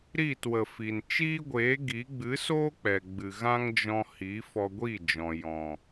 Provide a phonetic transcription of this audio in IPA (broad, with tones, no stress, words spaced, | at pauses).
ɾi˦˨twə˨fi˨n t͡ʃiː˦ɡʷeː˨˦ ɡi˨˦ ɡ͡bɨ˨˦soː˦ k͡pɛ˨ɡ͡bɨ˨ ɣã˦ŋd͡ʒɔ̃˧ hi˨˦fɔ˧ɡʷiː˦˨d͡ʒɔ̃˨ jɔ̃˨